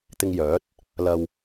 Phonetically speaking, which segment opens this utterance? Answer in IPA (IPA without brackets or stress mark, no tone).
t̪